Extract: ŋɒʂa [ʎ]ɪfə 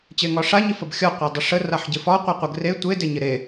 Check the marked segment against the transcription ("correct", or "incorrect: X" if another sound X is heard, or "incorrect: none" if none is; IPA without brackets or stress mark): incorrect: ɲ